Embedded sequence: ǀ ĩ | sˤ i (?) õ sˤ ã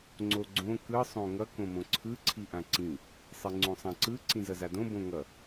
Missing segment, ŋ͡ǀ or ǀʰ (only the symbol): ŋ͡ǀ